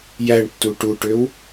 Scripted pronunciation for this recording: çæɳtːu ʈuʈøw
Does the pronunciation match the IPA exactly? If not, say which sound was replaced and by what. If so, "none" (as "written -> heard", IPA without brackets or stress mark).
ç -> j